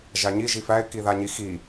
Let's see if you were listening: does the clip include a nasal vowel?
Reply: no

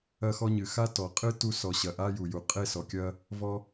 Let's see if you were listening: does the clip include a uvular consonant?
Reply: yes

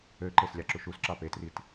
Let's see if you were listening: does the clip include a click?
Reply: yes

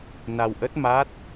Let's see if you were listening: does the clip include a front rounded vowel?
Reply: no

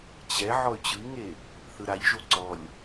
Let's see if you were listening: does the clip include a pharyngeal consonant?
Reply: yes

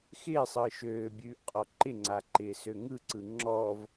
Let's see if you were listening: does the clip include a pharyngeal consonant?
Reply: no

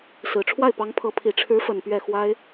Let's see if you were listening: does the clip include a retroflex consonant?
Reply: yes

